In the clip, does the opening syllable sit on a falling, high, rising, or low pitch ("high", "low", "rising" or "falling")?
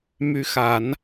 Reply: rising